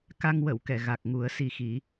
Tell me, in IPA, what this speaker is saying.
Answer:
ka˧ŋ wə˨˩˨wkɛ˨˩˨ ɣa˨˩k̚ŋu˨˩˦ə̯ si˨˩xi˨˩˦

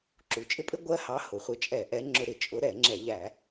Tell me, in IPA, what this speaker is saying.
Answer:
ǁu˩ t͡ʃʼɪ˦pʼɪ˦ ɡʷɜ˦hɑ˨˦ hʊ˩χʷɪ˨˦t͡ʃʼɛ˧˩˧ ʔɛ˨˦ŋ͡ǁʊ˧˩˧ɾɪ˩ t͡ʃʼʊ˨˦ɾɛ˧˩˧ ŋ͡ǁɛ˧˩˧ʎæ˧˩˧

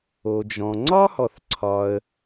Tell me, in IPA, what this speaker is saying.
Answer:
o˩d͡ʒɔ̃˩ ŋ͡ǀɒ˥hɔ˩θǀʰɒ˩ə̯

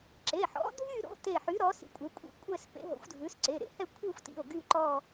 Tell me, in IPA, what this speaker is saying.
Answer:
ǁe˩˧˩ħɔ̰˨˥dʱy˥˧ ɾo̰˨˥te˧˩ħy˨˥ ɾɔ˨˥sḭ˧˩kʷʼe˨˥kʷʼḭ˧˩ kʷʼɛ˥˧s pḛ˨˥ɦo̰˨˥xʷdʱʉ˨˥s ǀe˩˧˩ɾḛ˨˥hɛ˥˧ kʷʰi˥˧xʷtḭ˩˧˩o̯ ɡy˥˧ǃɔ˥˧

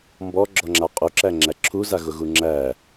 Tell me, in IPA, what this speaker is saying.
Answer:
mbɔɡ͡ǁɔŋ͡ǁa qʼuǁæŋ͡ǁæ ǁʰuzaɣʊɣu ŋ͡ǁæ

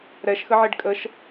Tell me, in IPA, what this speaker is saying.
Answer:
ɾɛʃxəʕeɖ kʼəʃ

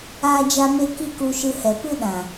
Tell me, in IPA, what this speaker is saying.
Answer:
aː˦d͡ʒa˦me˦ ki˦ku˧ʃɨ˧ hɛ˨pɨ˦ ɗã˨

